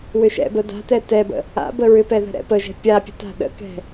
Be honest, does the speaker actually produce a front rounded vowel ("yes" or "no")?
yes